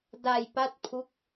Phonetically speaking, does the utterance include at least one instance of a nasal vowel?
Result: no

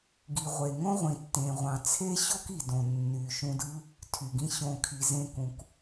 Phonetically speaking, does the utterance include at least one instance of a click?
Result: no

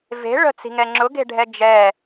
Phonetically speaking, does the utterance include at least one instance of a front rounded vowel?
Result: no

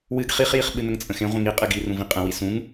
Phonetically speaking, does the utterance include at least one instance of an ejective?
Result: yes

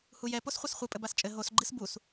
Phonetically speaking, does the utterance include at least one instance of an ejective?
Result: yes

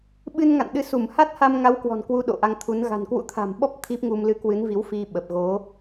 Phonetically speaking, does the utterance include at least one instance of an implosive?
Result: yes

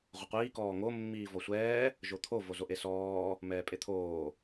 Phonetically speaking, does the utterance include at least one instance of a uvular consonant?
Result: yes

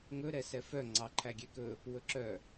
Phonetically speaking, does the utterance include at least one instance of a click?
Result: yes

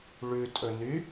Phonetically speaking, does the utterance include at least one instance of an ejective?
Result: yes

